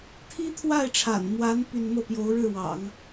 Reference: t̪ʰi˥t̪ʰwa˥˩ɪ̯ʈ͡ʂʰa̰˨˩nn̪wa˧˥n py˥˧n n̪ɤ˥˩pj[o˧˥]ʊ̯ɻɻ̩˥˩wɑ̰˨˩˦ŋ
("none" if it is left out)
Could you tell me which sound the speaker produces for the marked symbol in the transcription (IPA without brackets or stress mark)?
o˧˥